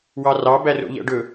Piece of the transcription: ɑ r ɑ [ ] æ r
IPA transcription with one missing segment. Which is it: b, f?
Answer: b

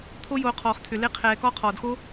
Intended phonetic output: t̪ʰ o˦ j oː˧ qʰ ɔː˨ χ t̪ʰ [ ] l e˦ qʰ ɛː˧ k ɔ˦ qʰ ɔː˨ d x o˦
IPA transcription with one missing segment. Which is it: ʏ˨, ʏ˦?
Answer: ʏ˨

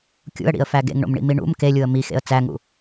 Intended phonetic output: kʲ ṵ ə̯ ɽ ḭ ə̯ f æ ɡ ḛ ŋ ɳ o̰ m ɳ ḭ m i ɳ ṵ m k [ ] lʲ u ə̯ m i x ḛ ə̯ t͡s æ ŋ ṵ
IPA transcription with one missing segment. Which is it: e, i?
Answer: e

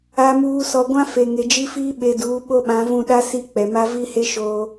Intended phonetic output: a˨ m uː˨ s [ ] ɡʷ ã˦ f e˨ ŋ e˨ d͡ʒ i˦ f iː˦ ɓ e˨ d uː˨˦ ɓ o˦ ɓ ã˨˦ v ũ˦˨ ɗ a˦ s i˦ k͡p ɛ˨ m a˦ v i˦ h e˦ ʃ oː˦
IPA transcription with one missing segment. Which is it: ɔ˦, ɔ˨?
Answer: ɔ˨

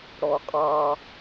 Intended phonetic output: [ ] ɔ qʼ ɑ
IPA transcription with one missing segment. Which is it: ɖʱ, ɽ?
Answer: ɽ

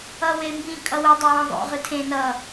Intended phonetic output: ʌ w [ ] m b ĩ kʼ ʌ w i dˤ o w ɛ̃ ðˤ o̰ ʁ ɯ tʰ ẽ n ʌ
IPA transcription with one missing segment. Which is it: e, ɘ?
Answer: e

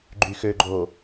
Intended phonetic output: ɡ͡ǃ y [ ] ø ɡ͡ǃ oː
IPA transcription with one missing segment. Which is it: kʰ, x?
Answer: x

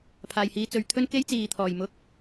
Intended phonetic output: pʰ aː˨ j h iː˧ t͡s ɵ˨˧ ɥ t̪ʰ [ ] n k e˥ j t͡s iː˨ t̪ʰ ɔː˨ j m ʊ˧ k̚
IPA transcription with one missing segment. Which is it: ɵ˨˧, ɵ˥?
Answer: ɵ˥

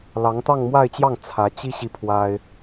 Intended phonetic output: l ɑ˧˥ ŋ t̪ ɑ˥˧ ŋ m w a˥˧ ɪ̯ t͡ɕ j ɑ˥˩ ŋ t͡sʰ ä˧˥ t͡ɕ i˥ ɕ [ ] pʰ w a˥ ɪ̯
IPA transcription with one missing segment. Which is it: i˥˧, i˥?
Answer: i˥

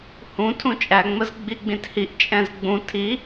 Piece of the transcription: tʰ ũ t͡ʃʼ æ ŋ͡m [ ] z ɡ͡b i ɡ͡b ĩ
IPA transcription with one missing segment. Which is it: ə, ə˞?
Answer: ə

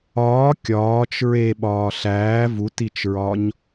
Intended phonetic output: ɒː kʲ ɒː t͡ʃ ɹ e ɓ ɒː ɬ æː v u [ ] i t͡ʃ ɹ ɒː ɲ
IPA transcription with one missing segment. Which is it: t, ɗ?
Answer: t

